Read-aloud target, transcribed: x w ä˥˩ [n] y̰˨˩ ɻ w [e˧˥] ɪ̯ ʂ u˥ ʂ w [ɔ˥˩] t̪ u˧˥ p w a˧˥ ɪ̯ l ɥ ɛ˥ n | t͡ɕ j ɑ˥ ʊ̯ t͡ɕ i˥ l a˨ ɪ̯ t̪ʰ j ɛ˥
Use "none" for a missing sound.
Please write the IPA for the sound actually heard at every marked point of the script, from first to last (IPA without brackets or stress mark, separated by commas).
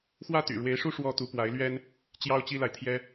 t̪, e˧˥, ɔ˥